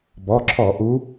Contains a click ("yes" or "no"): yes